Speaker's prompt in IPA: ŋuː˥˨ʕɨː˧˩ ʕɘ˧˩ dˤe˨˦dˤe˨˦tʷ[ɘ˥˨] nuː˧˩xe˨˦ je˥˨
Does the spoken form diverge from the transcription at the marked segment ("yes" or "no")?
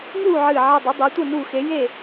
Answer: no